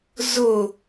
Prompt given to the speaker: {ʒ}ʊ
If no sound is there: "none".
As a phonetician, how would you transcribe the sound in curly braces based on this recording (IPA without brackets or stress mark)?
z